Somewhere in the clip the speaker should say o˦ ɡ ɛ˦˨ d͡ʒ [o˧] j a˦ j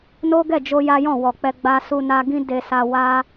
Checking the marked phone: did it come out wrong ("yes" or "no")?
no